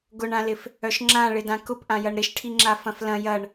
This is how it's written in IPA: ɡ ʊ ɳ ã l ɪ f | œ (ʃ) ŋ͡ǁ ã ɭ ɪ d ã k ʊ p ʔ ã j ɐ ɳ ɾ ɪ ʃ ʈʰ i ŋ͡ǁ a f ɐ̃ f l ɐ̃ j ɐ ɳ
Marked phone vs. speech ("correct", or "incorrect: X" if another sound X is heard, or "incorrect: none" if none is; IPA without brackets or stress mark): correct